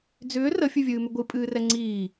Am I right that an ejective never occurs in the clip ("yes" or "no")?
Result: no